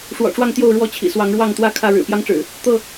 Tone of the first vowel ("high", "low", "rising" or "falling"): low